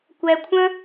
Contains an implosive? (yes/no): no